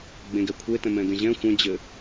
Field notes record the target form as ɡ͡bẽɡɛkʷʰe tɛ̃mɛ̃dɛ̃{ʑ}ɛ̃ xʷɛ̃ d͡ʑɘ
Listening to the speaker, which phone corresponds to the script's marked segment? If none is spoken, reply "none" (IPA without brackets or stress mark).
ʑ